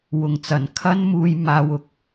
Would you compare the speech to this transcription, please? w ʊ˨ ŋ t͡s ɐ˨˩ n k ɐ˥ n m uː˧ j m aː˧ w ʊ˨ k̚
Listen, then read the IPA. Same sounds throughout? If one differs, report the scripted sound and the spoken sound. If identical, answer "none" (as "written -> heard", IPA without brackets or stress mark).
k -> kʰ